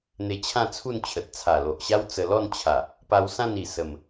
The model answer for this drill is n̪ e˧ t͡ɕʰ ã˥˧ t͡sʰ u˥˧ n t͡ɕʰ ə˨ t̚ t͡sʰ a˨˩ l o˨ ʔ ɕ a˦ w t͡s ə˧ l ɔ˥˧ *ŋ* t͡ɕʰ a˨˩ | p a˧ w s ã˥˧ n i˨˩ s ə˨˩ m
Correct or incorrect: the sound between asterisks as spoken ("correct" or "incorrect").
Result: incorrect